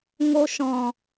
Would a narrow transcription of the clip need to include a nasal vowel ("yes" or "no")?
yes